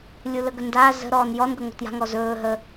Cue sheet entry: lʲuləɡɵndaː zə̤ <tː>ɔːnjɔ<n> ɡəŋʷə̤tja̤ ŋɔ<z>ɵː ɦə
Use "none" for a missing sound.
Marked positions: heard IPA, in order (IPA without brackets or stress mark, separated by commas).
ɾ, n, z